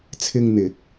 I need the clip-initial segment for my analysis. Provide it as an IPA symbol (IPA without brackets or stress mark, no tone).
t͡sʰ